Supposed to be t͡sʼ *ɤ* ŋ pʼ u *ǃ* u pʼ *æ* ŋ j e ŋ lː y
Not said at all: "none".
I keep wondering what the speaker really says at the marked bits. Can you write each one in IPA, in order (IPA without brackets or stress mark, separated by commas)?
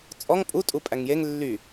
ɔ, tʼ, æ